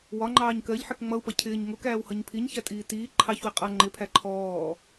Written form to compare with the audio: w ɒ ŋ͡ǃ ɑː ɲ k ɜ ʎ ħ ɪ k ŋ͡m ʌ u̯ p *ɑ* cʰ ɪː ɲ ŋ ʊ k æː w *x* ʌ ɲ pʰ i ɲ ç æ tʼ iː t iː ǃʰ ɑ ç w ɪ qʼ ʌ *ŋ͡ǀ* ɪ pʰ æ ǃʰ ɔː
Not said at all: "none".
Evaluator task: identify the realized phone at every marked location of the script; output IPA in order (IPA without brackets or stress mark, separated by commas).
ʌ, h, ŋ͡ǃ